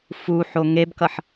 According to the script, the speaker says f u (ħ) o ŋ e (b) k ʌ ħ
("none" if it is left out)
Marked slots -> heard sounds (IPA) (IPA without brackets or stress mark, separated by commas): ħ, b